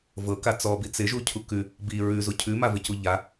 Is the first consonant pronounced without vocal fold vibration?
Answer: no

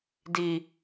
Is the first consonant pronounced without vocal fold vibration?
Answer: no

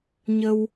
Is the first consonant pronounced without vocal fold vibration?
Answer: no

